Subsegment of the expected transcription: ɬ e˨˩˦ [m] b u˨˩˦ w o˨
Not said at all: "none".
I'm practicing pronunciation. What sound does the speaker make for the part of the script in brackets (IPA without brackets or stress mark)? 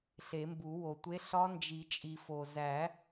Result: m